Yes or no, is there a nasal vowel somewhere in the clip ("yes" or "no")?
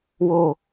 no